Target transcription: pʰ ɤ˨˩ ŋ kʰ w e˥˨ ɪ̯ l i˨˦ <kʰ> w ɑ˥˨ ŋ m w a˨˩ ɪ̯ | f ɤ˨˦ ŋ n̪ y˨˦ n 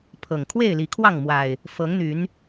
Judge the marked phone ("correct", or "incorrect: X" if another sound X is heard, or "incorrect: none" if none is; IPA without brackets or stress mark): correct